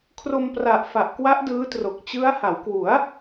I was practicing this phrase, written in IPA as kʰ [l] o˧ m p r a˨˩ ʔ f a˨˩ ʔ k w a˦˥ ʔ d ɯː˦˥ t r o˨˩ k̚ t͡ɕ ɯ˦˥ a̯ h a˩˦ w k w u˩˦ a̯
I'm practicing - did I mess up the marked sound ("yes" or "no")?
yes